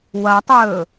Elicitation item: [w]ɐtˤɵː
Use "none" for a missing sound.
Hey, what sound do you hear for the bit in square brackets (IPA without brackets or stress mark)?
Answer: w